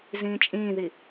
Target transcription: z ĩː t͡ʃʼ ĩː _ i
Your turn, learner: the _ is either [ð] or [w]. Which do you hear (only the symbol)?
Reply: ð